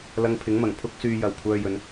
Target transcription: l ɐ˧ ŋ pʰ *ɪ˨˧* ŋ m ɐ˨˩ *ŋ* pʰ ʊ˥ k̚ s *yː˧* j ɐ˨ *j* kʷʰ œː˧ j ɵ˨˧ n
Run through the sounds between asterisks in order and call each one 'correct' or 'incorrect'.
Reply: incorrect, correct, correct, incorrect

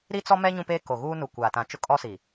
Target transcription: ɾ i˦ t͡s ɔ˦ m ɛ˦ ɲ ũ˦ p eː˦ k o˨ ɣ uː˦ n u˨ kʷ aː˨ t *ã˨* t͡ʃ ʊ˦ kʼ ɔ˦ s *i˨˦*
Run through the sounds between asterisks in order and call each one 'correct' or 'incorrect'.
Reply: correct, incorrect

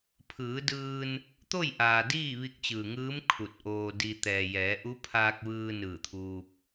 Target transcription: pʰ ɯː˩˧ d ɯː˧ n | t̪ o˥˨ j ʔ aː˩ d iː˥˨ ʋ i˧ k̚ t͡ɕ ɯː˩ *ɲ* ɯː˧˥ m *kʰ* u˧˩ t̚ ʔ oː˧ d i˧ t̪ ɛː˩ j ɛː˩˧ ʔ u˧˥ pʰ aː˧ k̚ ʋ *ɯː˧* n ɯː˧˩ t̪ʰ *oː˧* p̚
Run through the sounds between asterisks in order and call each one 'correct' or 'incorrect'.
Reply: incorrect, correct, correct, incorrect

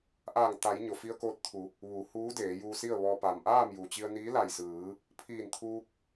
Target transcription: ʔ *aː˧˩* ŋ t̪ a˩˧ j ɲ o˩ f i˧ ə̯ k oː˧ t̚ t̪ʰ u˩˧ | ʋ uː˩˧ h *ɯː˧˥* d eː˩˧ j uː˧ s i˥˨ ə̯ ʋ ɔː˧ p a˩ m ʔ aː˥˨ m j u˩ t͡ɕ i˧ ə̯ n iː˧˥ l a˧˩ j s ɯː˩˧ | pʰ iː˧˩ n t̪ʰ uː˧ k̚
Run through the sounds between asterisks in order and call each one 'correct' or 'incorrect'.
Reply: correct, incorrect

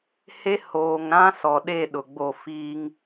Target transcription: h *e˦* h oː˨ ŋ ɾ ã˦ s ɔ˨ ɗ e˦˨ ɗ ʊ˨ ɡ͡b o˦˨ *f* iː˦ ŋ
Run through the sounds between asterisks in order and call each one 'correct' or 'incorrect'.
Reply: correct, correct

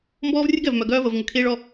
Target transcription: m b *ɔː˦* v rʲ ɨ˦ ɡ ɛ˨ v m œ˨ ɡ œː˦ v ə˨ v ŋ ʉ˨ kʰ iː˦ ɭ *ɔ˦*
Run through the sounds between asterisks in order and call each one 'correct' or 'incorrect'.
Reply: correct, correct

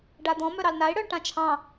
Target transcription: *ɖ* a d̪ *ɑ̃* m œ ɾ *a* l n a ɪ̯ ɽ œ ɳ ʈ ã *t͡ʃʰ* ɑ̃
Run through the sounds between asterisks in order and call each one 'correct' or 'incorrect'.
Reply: correct, incorrect, incorrect, correct

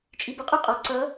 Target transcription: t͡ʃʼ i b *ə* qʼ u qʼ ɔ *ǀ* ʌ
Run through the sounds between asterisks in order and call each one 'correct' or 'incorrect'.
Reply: correct, correct

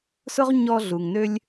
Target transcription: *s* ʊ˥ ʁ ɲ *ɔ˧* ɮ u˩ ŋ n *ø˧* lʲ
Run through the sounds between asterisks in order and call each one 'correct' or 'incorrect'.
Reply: correct, correct, correct

